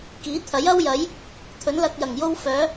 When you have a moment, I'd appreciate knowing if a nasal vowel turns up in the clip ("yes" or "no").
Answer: no